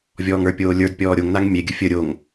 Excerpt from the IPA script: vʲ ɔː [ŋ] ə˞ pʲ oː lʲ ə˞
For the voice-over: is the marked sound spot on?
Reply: yes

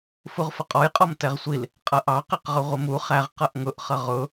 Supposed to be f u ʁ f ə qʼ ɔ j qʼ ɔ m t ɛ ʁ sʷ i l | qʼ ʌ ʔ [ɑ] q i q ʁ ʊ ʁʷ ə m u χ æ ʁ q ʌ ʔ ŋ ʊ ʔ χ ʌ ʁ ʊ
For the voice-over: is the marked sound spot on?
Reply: yes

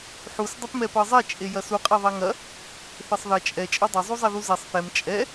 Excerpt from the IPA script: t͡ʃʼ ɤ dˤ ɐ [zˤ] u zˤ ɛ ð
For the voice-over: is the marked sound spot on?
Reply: yes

